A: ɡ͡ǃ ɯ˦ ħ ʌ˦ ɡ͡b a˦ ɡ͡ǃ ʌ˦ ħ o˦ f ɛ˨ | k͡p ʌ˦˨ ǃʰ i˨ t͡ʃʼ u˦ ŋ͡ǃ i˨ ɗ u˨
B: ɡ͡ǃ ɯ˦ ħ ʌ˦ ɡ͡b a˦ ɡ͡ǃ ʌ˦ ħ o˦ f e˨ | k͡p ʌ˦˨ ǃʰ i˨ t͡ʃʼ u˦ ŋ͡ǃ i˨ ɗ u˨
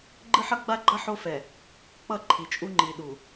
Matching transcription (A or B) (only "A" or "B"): A